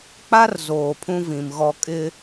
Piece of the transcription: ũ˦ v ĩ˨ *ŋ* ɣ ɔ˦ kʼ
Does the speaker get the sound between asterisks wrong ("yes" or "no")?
yes